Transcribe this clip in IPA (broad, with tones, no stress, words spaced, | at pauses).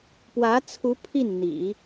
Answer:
pwä˧˥t͡sʰu˧˥ pʰi˥˩n n̪ḭ˨˩˦